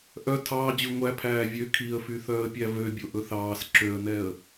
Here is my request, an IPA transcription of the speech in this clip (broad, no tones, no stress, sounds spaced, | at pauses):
ʔ œ tʰ ɑː d͡ʑ ʉ ŋʷ æ pʰ æː vʲ ø kʰ i ə̯ f y θ œː ə̯ pʲ æ v ø bʲ o ʔ ɵ θ ɑː s ǁ ø ə̯ n ɛ ə̯